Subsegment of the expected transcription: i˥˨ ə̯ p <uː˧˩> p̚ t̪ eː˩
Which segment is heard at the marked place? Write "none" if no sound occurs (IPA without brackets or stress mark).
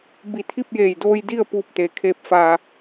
uː˧˩